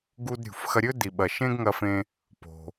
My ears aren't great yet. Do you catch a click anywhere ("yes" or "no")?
no